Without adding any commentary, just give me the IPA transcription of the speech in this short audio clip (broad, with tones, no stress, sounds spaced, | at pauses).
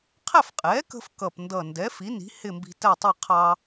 qʰ æ˥˨ f qʼ ɛː˩˥ k ə̤˧ f k ʌ˨˩ p n d ʌ˨˩ n d ɛː˩˥ f i˩˥ n i̤˩˥ h ɪ˥˨ m b i̤˧ t æ˥˨ tˤ ɛ˥˨ qʰ ɑ˧